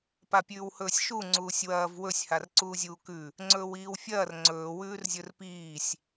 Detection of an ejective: absent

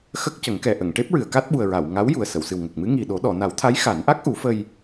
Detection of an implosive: present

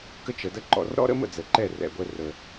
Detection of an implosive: absent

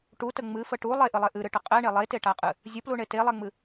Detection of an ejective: present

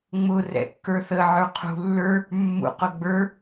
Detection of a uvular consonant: present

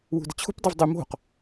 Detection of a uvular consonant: present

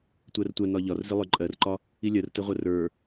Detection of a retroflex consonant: absent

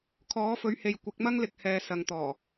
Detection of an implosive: absent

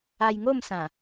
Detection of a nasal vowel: present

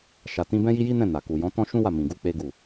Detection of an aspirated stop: absent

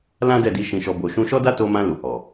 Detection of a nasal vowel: present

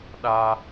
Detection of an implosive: present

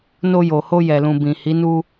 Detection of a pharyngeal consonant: absent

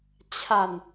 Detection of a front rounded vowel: absent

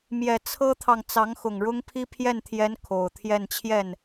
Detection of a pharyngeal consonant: absent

